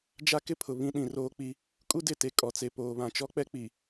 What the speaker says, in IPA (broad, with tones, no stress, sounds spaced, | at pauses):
d͡ʒ a˦ k ɪ˦ pʰ ʊ˨ β ĩ˦ ɗ ĩ˨ r oː˦ k͡p i˦ | kʼ u˦ d ɪ˦˨ t e˨ kʼ ɔ˨ t͡s e˨ p oː˨ β ã˨ t͡ʃ ɔ˦ k͡p ɛ˦ k͡p i˨